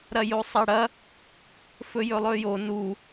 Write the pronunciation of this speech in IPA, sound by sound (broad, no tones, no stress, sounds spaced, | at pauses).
ɾ ɐ j o sˤ ɐ ɽ ɐ | f ɵ j ɵ lˠ ɵ j o n u